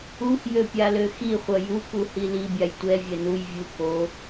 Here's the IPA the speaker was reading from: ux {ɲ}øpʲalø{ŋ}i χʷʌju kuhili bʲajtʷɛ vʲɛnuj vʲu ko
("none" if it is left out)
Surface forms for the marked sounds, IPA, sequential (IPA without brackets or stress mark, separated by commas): j, x